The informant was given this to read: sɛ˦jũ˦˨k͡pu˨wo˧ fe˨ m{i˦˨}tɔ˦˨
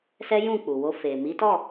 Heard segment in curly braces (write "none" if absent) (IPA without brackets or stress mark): i˨˦